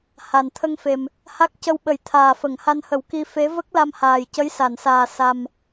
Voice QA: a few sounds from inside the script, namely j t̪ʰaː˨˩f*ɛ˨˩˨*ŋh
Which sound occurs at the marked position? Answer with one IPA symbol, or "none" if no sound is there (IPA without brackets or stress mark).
ə˨˩˨